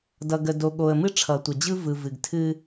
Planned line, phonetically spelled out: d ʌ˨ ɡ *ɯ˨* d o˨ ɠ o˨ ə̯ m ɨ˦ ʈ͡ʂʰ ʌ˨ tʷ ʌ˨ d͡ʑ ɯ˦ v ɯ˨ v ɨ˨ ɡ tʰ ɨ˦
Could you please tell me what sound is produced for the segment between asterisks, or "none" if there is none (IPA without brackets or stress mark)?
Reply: ə˨